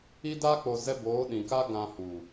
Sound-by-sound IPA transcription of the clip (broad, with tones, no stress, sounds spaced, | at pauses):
i˧ d a˧ k͡p o˨ z ɛ˧ b oː˨˦ ɗ ĩ˨ k a˦ ɡ ã˧ h u˨